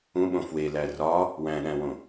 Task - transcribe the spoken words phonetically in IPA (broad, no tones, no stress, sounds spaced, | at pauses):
ũ ɓ õ f w e l æ r ɒ | w æ̃ ɗ æ̃ w õ